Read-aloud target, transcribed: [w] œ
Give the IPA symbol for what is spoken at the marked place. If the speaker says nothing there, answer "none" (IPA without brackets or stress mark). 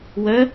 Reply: w